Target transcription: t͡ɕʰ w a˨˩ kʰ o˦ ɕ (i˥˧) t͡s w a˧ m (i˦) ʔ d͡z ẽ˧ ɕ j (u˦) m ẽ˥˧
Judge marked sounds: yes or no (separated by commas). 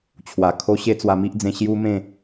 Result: no, yes, yes